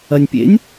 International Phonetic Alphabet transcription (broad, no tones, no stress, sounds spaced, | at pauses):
ɐ nʲ pʲ ḛ nʲ